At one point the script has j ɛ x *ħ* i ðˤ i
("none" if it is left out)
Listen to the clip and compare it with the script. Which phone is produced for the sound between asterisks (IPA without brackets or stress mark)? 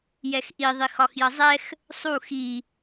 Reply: ʔ